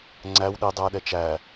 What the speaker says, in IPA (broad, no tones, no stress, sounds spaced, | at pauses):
ŋ͡ǀ æ w ɗ e dˤ æ ɗ ɛ t͡ʃ æ